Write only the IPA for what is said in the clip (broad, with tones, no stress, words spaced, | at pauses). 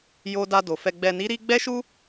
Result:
jo˧da˧do˨ fɛ˨ɡ͡bɛ˨ni˨˦ɾi˧ ɡ͡bɛ˦ʃu˦